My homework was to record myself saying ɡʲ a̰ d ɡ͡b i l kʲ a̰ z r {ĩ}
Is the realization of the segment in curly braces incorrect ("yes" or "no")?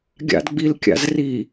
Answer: yes